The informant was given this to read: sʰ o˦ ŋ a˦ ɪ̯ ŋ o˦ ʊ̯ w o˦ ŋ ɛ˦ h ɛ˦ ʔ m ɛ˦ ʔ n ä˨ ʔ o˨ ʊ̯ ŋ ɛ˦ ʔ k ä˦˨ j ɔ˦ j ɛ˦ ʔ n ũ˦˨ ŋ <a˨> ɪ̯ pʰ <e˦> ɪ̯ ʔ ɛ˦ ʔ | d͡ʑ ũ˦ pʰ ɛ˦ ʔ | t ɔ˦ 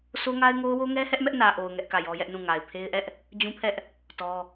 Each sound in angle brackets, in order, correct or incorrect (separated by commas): correct, correct